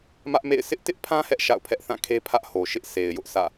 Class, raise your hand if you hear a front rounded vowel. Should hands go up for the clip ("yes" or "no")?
no